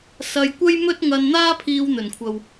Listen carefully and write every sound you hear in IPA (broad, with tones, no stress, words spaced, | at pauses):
sɐ˧jkʷɐ˥jmɵ˥t̚ ŋɐ˧nn̪aː˥pʰiː˧w n̪ɵ˨˩nkʷʰɐ˨w